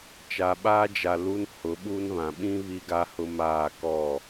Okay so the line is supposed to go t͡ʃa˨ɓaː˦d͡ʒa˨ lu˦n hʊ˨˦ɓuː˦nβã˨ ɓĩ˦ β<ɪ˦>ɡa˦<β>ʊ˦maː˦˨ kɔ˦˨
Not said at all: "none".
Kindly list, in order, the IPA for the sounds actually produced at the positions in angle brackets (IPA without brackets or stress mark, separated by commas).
i˦, h